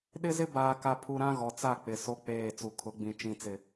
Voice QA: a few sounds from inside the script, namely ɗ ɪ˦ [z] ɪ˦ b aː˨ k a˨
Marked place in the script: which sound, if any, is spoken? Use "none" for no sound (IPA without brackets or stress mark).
z